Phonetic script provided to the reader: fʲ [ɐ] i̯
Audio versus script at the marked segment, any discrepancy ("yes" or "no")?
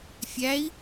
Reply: yes